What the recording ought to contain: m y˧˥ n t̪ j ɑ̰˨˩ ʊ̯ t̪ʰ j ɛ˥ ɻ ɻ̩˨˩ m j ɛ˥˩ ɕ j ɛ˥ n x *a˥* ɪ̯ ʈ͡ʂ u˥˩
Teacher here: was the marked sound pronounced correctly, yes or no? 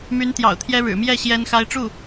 yes